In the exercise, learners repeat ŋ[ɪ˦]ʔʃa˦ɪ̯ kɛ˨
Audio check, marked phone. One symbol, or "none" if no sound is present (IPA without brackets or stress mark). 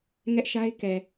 ɛ˦